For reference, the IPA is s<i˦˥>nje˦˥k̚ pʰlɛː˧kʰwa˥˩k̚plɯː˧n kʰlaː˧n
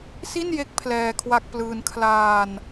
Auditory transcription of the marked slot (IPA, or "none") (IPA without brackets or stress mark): i˥˩